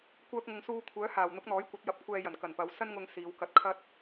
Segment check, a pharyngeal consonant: absent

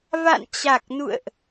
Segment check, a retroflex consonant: absent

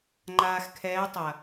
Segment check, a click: present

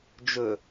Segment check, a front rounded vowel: absent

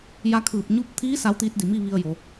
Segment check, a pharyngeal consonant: absent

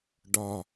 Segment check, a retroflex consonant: present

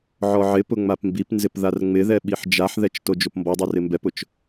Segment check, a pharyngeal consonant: present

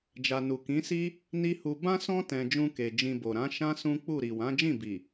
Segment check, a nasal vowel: present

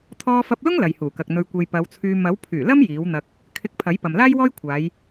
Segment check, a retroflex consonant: absent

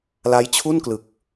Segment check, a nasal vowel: absent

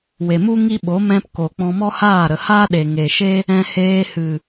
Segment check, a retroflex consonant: absent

